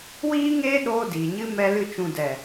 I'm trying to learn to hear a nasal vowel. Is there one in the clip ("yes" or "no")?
yes